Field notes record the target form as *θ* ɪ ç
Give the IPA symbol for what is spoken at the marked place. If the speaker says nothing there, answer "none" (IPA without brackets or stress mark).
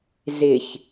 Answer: z